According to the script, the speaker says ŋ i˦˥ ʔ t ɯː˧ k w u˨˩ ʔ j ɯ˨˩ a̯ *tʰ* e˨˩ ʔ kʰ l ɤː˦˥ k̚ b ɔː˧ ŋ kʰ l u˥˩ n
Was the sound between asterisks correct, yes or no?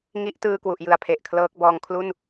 no